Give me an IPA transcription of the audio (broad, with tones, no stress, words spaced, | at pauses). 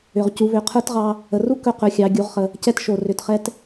ʏ˩ʁcu˩˧βʏ˩˧ qʰə˞˧˥tʁɑ˧ | ə˩ru˥ kɵ˧qɵ˩˧xʲɑ˩˧ ɡʲu˩˧ʁχə˩ | cɛ˧tʃo˩ rʏ˩tχɛ˧t